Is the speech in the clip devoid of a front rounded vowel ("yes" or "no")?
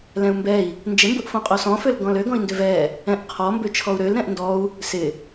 no